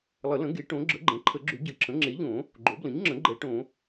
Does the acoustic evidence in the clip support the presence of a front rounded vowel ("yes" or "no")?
yes